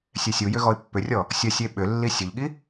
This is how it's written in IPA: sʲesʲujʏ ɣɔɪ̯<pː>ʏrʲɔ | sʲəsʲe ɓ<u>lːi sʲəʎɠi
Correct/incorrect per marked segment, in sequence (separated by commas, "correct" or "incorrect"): correct, incorrect